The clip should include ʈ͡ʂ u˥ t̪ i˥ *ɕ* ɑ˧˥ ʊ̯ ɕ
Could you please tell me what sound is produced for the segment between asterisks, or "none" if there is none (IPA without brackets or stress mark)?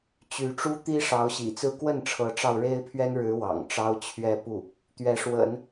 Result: ʂ